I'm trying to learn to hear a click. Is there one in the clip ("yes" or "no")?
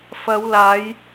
no